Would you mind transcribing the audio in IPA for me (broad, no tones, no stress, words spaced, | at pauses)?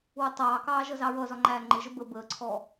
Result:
wətˤɑːkɑː ʒʌzɑɹʌzɒ ŋ͡ǃæːŋ͡ǃɪʒə bə bəːǀʰɔː